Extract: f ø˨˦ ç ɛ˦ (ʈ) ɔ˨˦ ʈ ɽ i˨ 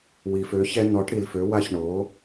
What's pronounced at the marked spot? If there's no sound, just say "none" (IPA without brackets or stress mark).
n